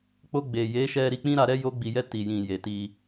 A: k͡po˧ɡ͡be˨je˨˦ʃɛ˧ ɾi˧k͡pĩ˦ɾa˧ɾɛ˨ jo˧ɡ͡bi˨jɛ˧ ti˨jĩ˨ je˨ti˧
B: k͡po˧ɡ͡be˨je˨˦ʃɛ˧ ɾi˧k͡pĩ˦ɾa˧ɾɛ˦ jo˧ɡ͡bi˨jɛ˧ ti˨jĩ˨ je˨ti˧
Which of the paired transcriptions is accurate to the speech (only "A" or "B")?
B